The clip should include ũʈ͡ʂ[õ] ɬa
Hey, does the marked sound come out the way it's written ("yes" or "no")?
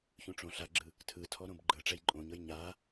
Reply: yes